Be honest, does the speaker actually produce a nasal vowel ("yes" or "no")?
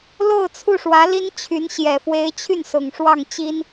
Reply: no